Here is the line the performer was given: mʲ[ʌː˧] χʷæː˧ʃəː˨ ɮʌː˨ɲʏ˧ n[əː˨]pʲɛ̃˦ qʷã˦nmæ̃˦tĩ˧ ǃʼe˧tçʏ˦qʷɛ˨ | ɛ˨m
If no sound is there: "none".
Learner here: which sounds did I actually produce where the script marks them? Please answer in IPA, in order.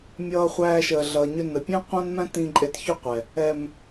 ʌː˧, ə˨

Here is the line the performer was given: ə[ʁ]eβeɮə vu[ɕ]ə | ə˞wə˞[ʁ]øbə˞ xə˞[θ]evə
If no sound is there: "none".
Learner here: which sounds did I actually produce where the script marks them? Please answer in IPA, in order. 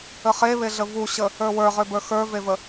χ, ɕ, ʁ, v

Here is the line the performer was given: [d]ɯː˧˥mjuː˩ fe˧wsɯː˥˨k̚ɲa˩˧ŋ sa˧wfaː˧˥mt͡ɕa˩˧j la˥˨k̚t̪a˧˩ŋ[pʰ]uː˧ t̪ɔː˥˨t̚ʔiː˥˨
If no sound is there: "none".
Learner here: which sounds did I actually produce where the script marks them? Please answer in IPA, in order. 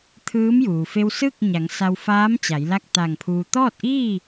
t̪ʰ, pʰ

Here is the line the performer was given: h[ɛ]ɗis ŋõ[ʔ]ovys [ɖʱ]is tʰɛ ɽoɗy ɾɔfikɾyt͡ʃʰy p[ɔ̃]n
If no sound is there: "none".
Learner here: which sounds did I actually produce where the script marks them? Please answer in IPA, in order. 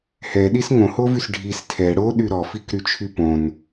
ɛ, h, ɖʱ, õ

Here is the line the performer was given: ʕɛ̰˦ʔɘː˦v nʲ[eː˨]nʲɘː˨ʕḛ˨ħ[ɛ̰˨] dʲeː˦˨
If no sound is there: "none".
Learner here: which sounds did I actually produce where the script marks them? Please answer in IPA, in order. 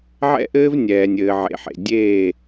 ɛː˨, ḛ˨

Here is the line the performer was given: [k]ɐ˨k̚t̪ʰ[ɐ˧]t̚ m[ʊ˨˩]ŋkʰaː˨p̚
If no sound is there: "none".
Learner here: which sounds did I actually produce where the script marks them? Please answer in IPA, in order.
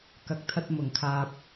k, ɐ˧, ʊ˨˩

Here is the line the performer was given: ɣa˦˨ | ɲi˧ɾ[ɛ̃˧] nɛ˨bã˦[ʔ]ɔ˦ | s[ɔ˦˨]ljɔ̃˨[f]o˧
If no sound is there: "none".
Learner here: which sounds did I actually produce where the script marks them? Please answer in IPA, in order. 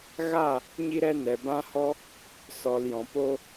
ɛ˧, h, ɔ˨, p

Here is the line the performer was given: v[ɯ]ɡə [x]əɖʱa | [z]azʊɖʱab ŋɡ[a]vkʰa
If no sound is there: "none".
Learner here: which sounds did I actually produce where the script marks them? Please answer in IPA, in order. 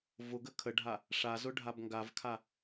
ʊ, kʰ, ʂ, a

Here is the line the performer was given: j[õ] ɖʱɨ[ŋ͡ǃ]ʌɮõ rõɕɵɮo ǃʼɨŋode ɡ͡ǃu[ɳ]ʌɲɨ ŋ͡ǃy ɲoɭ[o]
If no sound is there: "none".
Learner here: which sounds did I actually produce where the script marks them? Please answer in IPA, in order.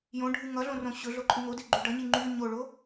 õ, ŋ, ɖ, o

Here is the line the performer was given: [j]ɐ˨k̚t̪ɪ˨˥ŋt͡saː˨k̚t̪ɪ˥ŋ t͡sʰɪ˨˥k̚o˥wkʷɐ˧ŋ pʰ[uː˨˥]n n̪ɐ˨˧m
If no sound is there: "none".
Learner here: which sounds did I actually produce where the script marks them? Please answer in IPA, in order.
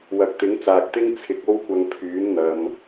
w, yː˨˥

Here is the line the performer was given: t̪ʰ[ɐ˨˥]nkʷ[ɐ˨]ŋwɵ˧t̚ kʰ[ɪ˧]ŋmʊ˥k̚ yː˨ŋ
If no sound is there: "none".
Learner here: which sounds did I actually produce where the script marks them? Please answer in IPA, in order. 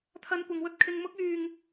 ɐ˧, ɐ˨, ɪ˧

